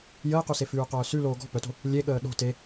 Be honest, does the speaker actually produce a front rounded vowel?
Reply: yes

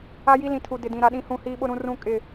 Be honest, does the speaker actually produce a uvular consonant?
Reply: no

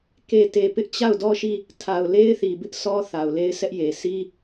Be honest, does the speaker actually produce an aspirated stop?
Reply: yes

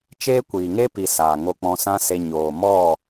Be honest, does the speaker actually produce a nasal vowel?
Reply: yes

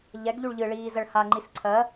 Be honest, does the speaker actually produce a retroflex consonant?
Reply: yes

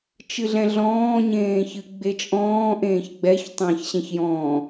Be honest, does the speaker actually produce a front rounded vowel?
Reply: no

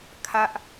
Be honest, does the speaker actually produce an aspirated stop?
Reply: yes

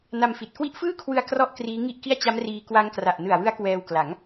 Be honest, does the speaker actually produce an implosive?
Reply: no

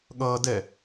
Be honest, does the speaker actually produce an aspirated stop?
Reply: no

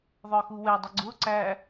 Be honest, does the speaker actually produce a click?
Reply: yes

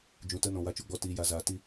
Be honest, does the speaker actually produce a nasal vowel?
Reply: yes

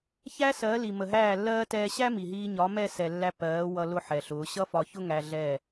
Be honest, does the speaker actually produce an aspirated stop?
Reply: no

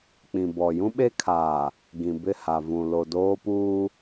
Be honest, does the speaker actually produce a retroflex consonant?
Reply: no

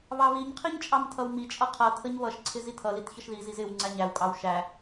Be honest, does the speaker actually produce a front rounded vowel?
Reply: no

